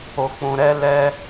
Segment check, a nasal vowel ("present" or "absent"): present